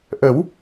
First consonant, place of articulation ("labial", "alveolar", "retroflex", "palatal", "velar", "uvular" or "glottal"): glottal